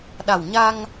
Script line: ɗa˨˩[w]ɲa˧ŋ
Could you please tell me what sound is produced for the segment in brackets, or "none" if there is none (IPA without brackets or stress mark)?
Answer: w